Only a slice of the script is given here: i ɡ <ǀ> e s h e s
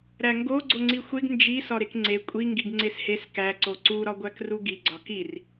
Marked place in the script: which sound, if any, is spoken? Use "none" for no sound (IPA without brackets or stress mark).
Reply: ŋ͡ǀ